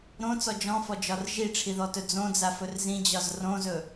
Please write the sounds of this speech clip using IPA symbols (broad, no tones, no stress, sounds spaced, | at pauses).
ɾ õ t͡s ɔ d͡ʒ ɔ̃ f ɔ d͡ʒ ɒ r ʒ i ʈ͡ʂʰ i ð ɔ t ɵ d͡z õ d͡z a f ɵ r z ĩ d͡ʑ ɒ z r õ z ɵ